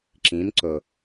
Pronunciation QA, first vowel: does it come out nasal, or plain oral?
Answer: nasal